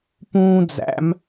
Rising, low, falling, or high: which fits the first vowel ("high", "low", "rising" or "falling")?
high